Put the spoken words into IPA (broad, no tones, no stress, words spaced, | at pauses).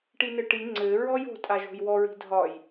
ʈinɘʈi ŋ͡ǀɘ ɹɔjo̤ tʼaʒo̤jwɔ ɹi̤dʱɒj